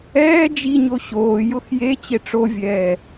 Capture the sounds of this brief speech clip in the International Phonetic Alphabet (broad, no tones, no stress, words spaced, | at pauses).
ɛː d͡ʒiɲo ɕoːjʊx je t͡ɕeʈ͡ʂovʲɛː